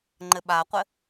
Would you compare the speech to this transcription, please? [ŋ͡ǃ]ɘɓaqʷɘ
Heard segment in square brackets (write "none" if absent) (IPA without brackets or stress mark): ŋ͡ǃ